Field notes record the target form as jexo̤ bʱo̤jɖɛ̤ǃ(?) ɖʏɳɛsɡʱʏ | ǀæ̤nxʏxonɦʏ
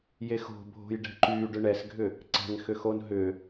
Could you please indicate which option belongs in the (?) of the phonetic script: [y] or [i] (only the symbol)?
y